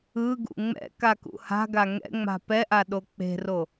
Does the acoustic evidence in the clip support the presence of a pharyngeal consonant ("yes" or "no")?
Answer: no